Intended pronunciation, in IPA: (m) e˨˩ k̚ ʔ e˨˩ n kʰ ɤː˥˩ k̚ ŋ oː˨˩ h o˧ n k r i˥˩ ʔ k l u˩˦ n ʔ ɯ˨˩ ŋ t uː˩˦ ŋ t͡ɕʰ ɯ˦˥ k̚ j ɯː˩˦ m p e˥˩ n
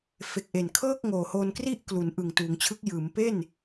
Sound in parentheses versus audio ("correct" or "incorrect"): incorrect